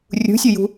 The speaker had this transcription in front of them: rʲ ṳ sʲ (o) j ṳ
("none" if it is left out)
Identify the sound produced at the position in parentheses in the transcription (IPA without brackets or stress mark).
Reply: o